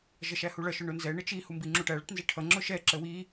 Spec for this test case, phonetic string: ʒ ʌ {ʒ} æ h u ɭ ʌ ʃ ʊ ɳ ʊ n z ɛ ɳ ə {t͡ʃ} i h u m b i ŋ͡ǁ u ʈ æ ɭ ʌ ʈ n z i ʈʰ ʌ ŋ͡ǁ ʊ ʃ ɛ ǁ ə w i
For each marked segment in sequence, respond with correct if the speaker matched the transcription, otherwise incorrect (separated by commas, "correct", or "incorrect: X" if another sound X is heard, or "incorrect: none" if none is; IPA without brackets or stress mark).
incorrect: ʃ, correct